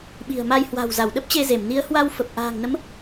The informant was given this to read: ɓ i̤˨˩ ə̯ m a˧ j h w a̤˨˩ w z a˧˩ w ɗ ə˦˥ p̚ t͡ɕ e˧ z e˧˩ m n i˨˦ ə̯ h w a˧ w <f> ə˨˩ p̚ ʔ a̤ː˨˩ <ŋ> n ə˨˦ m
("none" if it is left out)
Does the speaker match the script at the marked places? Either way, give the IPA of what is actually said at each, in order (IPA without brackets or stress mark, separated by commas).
f, ŋ